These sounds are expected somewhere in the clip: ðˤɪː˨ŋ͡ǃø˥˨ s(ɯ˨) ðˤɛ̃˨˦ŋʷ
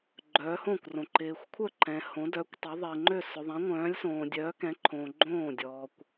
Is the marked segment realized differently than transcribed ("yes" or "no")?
yes